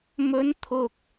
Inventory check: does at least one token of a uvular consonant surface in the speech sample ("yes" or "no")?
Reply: no